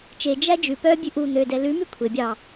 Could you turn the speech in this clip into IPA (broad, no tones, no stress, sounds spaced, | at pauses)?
t͡ʃ e d͡ʒ æ d͡ʒ ʉ p œ bʲ ʉ ʔ u n̪ ø d ɛ l ʉ m y kʷʰ e bʲ ɑ